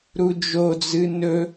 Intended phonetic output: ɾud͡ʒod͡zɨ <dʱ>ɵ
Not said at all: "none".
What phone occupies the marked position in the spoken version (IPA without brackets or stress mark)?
n